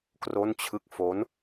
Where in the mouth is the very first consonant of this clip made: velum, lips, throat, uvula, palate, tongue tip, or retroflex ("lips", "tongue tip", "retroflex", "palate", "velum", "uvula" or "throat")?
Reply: velum